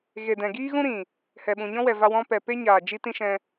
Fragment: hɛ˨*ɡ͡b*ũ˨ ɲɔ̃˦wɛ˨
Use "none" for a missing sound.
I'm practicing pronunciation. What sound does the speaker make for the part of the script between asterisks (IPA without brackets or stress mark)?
ɓ